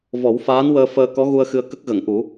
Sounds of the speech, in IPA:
v ɔ˨˩˦ w f aː˧˥ n w əː˧ f əː˧ k ɔ˧˥ ɣ u˧ ə̯ x ɨ˧ ə̯ k ə˦˥ k̚ ɣ ə˨˩˨ ŋ ʔ u˨˩˦

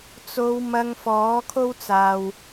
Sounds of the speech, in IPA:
t͡s o˨˧ w m ɐ˧ ŋ f ɔː˨˥ kʰ o˥ w t͡s aː˨ w

